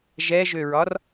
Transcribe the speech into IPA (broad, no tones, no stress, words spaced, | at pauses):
ʒɛʒøɹɒr